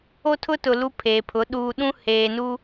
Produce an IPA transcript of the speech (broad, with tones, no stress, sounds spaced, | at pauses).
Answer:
o˦ tʰ ʊ˦ t ʊ˨ l u˦ pʰ eː˨ pʰ ʊ˨˦ ɗ uː˨ ɗ ũ˦ h eː˨ n u˦